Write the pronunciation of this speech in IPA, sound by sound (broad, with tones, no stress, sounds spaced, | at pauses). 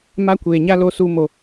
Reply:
m a˦ kʷ eː˨ ɲ a˦ l o˦ s uː˦ m o˦